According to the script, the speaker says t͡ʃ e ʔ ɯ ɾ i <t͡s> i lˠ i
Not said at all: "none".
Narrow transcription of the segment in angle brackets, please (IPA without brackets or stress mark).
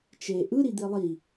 d̪